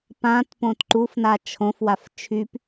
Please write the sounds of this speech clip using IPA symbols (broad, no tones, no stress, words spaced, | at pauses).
pãt põtǃufna t͡ʃʰõfwaf t͡ʃʰyp